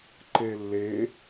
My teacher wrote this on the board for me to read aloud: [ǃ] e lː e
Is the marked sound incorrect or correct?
correct